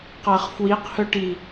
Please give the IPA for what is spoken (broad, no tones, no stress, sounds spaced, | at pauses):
q ɐː χ f w i q h œ ʈ i